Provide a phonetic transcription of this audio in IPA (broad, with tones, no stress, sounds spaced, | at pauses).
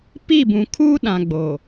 p i˦˨ b ũ˨ kʰ uː˦ ɗ ã˨ ɡ͡b oː˨